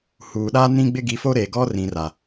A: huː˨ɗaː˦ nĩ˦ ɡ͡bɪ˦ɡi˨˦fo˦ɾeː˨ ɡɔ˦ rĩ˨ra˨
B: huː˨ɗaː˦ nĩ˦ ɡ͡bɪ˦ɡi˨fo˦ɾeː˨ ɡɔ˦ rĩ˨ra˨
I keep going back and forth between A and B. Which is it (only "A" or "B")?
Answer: A